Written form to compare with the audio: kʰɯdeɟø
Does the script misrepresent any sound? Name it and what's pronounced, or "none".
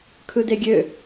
ɟ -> ɡʲ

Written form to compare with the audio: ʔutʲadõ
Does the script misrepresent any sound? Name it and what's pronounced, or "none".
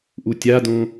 none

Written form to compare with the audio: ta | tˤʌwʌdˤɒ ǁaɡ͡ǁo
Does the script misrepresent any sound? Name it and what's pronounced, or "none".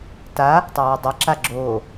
ɒ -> ʌ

